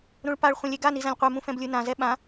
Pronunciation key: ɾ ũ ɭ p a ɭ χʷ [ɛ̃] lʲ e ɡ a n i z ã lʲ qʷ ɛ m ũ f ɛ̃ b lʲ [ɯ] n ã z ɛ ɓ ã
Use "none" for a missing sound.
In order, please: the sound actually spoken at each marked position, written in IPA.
ẽ, ɯ

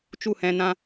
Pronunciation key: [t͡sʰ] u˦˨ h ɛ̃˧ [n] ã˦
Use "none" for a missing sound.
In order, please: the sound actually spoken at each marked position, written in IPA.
t͡ʃ, n

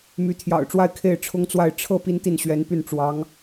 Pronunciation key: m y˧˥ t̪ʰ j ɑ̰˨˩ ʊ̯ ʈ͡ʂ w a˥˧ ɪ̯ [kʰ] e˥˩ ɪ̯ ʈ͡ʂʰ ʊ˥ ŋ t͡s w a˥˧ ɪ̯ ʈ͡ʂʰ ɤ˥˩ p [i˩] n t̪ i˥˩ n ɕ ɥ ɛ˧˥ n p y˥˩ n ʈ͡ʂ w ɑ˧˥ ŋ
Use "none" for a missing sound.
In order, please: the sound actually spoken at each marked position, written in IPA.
kʰ, i˥

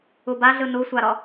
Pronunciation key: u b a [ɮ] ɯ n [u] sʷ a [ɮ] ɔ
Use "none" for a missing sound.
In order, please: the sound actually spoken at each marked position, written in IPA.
ɮ, u, ɾ

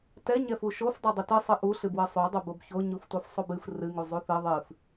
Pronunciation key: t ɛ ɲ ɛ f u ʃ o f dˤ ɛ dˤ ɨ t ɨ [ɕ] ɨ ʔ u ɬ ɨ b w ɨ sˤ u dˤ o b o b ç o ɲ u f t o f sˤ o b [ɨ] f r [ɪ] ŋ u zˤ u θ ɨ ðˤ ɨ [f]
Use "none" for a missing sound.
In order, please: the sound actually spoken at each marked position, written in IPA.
sˤ, ɨ, ɨ, f

